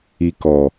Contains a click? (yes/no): no